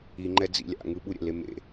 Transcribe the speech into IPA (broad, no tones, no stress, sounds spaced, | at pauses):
i ŋ͡ǃ ɛ d͡z ḭ lʲ a̰ ŋ ɯ ɓ u ɾʲ ɛ̰ l e m ḛ